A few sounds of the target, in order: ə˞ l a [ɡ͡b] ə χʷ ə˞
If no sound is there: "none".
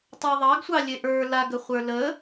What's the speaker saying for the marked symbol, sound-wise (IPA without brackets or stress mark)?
ɡ